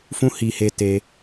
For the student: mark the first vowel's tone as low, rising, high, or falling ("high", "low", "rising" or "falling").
high